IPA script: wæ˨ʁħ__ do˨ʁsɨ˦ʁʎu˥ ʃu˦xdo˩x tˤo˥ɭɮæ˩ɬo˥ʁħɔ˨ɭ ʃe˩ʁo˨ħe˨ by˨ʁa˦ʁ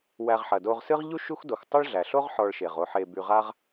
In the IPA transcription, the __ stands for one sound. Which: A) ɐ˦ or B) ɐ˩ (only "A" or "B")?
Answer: B